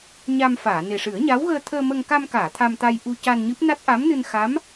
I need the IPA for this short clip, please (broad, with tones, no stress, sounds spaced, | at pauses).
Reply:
ɲ a˧ m f aː˨˩˨ n e˨˩ ʂ ɨ˨˩˦ ə̯ ɲ a˧˥ w ɣ əː˧ t̪ʰ əː˧ m ə˧ ŋ k a˧ m k aː˨˩˨ t̪ʰ a˧ m t̪ a˧ j ʔ u˧ c a˧ n ɲ ɨ˦˥ p̚ n a˦˥ t̚ ʔ a˧˥ m n ɨ˧ n x a˧˥ m